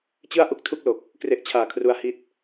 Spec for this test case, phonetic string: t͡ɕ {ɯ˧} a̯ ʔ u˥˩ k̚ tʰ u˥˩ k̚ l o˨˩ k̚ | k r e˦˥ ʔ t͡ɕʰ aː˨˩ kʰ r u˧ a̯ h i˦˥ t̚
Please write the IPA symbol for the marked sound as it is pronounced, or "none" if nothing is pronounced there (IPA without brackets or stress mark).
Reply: ɯ˥˩